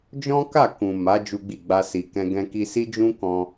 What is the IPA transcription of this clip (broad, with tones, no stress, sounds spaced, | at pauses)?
d͡ʒ ɔ̃˦ k a˦˨ k ũ˨ m a˨˦ d͡ʒ u˦ ɡ͡b i˦˨ ɡ͡b a˧ s i˨ k ɛ̃˧ ɡ ɛ̃˧ k i˧ s i˦ d͡ʒ ũ˦ k ɔ̃˧